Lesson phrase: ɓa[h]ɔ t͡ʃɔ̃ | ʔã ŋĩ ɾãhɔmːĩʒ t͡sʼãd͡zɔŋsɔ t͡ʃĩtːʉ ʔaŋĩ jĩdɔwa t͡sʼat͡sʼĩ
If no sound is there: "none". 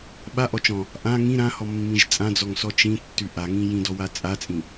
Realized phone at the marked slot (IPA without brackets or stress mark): ʔ